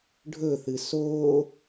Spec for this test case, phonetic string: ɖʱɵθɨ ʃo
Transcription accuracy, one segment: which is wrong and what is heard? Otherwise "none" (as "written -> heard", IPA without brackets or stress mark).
ʃ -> s